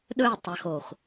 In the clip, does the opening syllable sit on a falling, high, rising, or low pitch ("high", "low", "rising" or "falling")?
falling